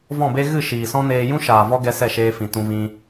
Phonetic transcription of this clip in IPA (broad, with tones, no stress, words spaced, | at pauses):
vɔ̃˦˨be˦ ɣɨ˦˨ ʃiː˨sɔ̃˦neː˧ jũ˦ʃaː˨ vɔ˦ɡɛ˧ sɛ˦˨ʃeː˧fĩ˨ tũ˧vĩ˧